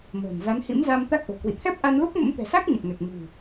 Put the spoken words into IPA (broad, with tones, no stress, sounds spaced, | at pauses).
m ə̤ː˨˩ n z a˨˦ n h ḭ˧˥ m z a˧ m t̪ a˦˥ k̚ ʔ o̤˨˩ k w ḭ˧˨ t̪ʰ ɛ˦˥ p̚ ʔ a˧ n l u˦˥ k̚ m ə̰˧˥ m t̪ ɛ̤˨˩ s a˦˥ k̚ ɲ ə˨˩ t̚ ŋ ɛ˨˩ k̚ m ɨ̤˨˩